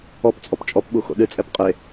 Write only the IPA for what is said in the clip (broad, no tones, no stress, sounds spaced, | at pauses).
ɔ p t͡sʼ ɔ p t͡ʃʼ ɔ p ɓ u x o̰ ɗ ɨ t͡sʼ ɛ p qʼ e